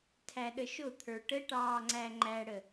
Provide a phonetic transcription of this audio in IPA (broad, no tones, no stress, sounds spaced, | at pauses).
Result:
tʰ æ ɗ ə ʃ ʊ t̪ʰ ə˞ ʈ ə ʈ ɑː ŋ͡ǀ æ ŋ͡ǃ æ ɽ ə